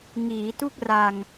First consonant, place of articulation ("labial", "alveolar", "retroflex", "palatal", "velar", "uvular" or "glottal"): velar